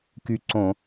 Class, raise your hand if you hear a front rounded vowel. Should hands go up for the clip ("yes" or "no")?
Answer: yes